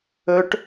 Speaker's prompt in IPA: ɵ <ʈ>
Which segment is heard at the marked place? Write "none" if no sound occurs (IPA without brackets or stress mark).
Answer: ʈ